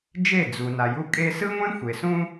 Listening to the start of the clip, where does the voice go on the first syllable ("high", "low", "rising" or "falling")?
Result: falling